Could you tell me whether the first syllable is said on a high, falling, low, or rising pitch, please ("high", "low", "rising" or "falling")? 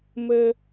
high